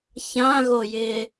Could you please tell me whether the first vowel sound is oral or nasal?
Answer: nasal